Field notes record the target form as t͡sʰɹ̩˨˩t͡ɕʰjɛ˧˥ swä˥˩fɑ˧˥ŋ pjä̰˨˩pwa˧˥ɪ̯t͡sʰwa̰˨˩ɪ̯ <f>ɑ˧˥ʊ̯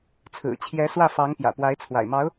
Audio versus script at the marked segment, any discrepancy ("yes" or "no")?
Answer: yes